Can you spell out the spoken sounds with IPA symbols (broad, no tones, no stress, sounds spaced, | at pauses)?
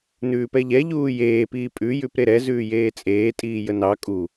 n ʉː p ɛ ʎ ɛ ʎ uː j eː p iː pʼ ʉ j ʉ p ɾ e ɾ ɛ z ʉː j eː t͡sʼ eː tʼ iː j ə n ɑ kʼ u